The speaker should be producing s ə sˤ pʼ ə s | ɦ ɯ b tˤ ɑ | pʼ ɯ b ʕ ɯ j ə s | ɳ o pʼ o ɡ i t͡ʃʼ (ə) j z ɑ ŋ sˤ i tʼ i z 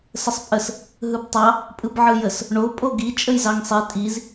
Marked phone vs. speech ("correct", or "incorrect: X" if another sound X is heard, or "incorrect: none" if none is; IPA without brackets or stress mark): correct